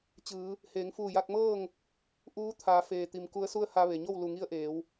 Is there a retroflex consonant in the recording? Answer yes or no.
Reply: no